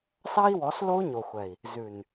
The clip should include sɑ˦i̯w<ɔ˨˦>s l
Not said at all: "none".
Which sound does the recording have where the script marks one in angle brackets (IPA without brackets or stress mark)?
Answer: ɔ˨˦